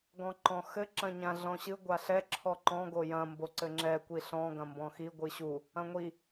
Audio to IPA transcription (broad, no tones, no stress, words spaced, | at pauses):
ɡɔ̃ǃɔ̃xɘ ǁɐ̃ɲãɮɔ̃ɕɨ ɡʷaɬɛ ǁʰɔǃɔ̃ ɡojɐ̃ mboǀɘŋ͡ǁɛ kʷiɬɔ̃ ɡɐ̃mbɔ̃xi ɡʷɨɕu | ɐ̃ŋʷi